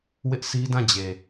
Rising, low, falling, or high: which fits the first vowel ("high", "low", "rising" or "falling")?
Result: high